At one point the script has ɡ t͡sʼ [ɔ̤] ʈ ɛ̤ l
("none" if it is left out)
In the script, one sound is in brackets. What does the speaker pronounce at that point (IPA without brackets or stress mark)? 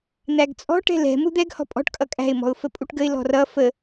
ɔ̤